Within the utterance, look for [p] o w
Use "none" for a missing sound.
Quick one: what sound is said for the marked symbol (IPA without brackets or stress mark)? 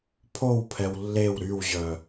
pʰ